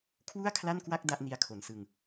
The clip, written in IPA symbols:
kʰwu˥˩a̯kʰla˥˩nkwa˥˩k̚ da˥˩ʔni˧a̯kʰo˩˦nsɯ˧ŋ

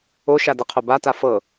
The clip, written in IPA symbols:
o ʃadəqʰo bata fɤ

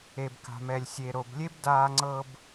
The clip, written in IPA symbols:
e˨bka̤˨mɛ˨lʲ sʲe˨ɾo˨blʲe˦bdaː˧ ŋ͡ǀɤ˧b

